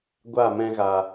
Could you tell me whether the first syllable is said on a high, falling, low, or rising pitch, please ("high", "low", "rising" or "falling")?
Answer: falling